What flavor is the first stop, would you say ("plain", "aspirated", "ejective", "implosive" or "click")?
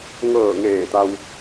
plain